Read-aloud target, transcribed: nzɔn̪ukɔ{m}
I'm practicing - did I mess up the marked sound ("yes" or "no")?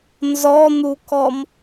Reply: no